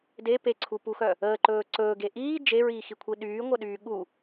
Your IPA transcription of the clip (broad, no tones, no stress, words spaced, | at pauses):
de peǀʰupuxœ | əːǃɵː ǀɵːɡe ʔiː d͡ʒeɹiːxikʷʰi ɗyːŋʷœɗyː ɠu